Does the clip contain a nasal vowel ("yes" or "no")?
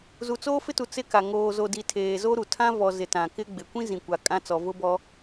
yes